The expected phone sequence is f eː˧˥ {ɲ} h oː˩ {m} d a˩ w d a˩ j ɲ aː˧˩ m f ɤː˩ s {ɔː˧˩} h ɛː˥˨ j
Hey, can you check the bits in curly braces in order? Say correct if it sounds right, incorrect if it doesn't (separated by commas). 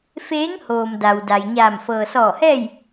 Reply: incorrect, correct, correct